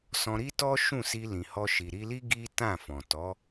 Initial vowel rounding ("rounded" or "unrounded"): rounded